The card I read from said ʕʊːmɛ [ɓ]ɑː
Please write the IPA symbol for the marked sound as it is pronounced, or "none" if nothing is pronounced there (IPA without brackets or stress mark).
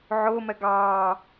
ɡ